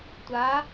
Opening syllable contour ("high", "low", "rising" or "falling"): rising